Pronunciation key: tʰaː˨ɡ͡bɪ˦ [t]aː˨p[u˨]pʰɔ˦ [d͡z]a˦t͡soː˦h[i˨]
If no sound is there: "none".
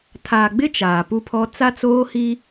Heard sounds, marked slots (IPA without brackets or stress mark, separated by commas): t͡ʃ, u˦, t͡s, i˦